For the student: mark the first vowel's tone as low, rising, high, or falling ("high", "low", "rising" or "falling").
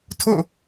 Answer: falling